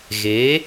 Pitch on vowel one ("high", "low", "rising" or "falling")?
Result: rising